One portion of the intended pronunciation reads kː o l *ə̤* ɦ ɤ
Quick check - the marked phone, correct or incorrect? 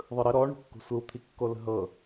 correct